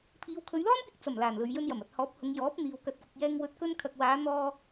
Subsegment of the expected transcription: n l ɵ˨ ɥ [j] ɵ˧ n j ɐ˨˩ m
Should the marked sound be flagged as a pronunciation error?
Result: no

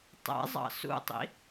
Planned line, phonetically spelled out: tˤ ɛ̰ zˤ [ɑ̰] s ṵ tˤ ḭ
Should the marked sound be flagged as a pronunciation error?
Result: no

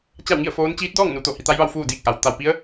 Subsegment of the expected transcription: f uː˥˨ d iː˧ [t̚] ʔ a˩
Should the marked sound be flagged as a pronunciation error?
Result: yes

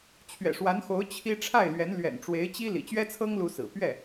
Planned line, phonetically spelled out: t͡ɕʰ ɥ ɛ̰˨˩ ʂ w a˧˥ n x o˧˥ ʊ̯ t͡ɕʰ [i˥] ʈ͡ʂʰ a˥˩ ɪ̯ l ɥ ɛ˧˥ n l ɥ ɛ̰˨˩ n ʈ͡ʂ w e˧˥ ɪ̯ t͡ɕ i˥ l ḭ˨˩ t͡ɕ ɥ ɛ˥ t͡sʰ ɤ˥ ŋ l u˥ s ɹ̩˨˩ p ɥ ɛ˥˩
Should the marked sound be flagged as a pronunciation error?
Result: no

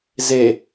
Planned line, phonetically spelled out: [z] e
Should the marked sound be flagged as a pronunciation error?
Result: no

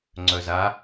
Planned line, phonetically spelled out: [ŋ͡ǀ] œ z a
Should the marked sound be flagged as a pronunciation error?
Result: no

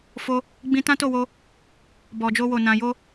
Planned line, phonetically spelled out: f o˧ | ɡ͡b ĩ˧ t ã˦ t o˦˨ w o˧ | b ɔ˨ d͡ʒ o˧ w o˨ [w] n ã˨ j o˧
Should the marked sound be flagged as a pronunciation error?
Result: yes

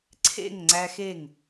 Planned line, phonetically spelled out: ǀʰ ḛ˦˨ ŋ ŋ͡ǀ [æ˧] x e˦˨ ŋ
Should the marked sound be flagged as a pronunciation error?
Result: no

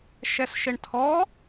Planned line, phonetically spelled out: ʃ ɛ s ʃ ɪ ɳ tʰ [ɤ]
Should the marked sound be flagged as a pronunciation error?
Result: yes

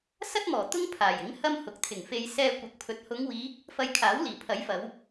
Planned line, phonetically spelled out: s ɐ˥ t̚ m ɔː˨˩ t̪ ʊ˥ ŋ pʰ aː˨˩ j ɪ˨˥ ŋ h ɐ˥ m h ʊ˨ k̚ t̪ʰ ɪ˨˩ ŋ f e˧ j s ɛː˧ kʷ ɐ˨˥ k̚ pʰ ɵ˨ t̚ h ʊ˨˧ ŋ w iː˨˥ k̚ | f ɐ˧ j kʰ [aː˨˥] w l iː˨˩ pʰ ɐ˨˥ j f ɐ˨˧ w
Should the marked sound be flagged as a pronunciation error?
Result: no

